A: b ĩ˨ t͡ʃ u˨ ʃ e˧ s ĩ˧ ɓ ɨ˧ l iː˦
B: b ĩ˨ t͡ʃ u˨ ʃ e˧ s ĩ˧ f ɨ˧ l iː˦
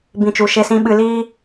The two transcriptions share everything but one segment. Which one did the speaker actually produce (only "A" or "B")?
A